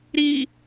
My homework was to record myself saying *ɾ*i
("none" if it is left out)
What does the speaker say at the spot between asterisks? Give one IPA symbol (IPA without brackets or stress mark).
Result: ɾ